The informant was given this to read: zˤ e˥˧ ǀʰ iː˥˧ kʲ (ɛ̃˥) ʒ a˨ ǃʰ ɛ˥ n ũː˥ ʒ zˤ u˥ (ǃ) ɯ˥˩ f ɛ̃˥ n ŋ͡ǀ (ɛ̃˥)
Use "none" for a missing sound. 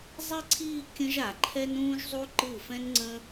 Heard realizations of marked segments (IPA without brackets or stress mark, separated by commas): ə̃˥, ǃ, ə̃˥